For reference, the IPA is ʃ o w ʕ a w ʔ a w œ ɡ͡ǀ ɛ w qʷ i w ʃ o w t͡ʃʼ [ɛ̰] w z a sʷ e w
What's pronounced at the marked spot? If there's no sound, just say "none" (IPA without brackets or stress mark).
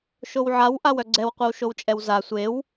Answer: ɛ